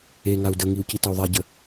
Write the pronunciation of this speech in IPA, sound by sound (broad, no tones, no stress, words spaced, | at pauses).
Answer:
eŋau̯ dəŋiu̯ citəu̯ðˤaɟə